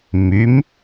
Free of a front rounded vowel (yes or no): no